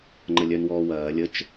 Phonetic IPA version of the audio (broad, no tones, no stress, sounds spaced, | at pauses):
ŋ͡ǃ ə lʲ œ n w ɔː w ɐː lʲ ə t͡ʃ